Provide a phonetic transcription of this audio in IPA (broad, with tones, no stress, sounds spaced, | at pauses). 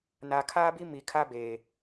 n aː˨ kʰ aː˦ b i˦ m i˨ kʰ a˦ b eː˨